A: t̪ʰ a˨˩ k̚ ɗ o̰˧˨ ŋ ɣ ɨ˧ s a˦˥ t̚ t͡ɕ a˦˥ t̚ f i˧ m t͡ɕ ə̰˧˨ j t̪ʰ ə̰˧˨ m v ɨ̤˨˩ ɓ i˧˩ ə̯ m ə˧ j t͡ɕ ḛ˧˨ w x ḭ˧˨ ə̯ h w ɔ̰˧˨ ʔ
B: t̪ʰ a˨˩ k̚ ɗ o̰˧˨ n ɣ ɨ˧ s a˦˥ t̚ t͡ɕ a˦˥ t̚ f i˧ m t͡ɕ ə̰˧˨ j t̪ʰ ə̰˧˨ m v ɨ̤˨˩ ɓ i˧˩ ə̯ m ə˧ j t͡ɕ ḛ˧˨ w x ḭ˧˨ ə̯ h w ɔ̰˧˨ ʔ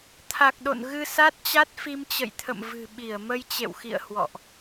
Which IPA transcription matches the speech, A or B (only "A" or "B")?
B